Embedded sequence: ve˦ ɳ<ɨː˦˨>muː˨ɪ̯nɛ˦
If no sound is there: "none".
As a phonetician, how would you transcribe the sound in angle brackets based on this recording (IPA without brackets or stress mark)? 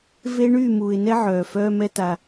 yː˦˨